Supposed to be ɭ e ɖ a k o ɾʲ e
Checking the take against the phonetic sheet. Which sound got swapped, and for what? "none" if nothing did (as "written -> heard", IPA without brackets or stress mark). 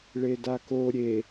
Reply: ɖ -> d